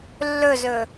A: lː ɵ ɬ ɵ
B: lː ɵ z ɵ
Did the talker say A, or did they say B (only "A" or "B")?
B